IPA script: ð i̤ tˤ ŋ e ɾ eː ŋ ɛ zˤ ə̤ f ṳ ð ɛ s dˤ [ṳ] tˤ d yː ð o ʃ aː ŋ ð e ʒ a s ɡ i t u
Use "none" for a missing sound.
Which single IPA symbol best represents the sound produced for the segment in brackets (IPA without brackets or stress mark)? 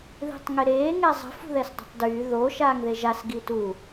ṳ